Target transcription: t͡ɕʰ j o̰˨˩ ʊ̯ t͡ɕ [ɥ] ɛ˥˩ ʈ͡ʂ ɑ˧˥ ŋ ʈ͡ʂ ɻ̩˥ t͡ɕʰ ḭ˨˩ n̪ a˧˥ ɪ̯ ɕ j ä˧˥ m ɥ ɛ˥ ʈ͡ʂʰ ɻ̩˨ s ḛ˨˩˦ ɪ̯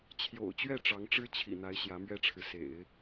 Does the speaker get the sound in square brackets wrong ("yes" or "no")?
no